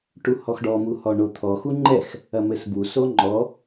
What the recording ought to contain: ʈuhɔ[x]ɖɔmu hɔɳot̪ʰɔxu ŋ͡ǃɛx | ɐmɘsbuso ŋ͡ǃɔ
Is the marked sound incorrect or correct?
correct